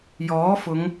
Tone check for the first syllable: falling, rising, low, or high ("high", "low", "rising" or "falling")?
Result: rising